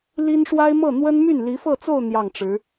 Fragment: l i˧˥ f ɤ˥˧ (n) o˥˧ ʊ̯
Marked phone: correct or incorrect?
incorrect: t͡s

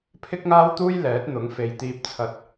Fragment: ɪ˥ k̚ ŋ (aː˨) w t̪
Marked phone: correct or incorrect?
incorrect: aː˥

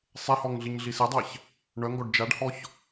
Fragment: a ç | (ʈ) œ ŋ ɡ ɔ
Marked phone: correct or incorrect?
incorrect: ɳ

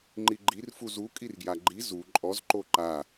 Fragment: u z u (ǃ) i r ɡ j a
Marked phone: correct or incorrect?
incorrect: kʼ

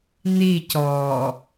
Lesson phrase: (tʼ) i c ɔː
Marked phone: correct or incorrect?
incorrect: n̪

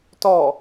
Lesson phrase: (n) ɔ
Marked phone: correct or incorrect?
incorrect: t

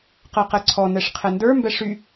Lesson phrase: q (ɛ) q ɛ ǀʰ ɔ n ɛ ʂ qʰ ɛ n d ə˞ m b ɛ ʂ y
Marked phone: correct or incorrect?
incorrect: ɜ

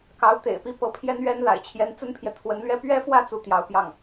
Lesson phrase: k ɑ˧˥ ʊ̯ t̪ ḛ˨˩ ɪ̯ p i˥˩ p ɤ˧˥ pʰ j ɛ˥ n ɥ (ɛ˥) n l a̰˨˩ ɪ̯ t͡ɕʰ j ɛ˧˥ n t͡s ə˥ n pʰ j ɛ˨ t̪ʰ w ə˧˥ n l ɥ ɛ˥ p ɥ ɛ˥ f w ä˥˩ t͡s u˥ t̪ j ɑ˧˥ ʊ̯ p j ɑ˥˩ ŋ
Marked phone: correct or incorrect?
correct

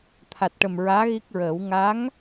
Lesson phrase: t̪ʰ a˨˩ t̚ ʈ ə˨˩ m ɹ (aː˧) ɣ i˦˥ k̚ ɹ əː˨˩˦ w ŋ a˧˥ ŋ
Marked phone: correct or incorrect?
incorrect: aː˧˥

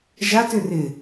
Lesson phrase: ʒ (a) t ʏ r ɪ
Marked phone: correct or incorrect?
correct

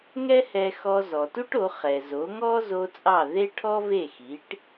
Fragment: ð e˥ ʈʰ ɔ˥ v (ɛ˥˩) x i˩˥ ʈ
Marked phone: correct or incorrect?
incorrect: e˥˩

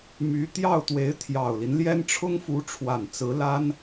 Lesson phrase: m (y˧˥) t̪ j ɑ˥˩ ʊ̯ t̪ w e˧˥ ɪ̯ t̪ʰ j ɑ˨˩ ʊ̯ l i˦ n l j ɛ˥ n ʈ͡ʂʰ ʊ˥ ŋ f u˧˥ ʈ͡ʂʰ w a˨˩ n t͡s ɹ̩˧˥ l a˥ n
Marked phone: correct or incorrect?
correct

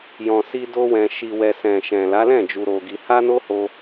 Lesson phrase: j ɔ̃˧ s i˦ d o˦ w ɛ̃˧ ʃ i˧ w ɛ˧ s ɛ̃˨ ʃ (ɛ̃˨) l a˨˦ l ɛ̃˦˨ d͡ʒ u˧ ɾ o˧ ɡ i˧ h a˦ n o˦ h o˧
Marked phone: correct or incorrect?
correct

